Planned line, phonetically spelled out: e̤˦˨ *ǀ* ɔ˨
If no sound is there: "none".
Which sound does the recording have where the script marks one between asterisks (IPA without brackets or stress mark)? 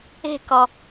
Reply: k